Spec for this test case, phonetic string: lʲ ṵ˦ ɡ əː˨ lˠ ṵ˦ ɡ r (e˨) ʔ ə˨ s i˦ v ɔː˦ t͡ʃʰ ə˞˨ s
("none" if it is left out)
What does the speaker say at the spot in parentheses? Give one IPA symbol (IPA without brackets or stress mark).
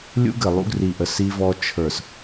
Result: i˨